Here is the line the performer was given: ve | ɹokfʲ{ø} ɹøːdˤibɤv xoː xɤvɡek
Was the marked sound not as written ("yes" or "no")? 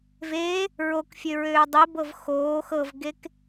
no